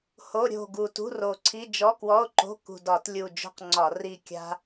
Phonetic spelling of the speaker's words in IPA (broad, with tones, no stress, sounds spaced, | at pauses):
h o˧˥˧ ɾʲ o̤˦˨ ɡ u˨˩ t ṳ˧˥˧ r o˨˩ ǀʰ i˧˥˧ d͡ʒ ɔ˧˥˧ k w ɔ˧˥˧ o̯ ǃ o̤˧˥˧ k ṳ˨˩ d ɒ˧˩˧ t lʲ u˨˩ d͡ʒ o̤˦˨ q ŋ͡ǀ ɒ˧˩˧ r i˦˨ kʲ a̤˥